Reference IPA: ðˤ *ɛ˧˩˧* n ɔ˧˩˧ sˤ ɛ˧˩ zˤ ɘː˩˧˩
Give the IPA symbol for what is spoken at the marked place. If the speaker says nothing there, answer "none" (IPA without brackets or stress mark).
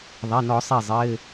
ɛ˩˧˩